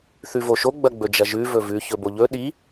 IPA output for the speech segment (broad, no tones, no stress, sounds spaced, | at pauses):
θ ʉ v o ʃ o ɡ͡b ɐ ɡ͡b ɵ d͡ʒ ɐ ʒ ʉ v ɵ v ʉ ç ɵ b o ʎ ɵ ɗ i